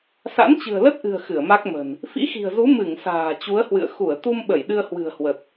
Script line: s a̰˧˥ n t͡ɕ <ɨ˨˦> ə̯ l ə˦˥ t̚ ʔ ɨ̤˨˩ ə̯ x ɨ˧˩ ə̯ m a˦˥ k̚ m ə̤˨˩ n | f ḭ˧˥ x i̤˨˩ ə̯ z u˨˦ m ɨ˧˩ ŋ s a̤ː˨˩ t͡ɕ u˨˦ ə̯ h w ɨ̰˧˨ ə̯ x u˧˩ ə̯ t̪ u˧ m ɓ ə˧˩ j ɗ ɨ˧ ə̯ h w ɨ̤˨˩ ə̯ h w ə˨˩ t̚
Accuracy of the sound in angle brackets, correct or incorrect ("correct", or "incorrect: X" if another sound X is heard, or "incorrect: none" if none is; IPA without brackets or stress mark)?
incorrect: ɨ̤˨˩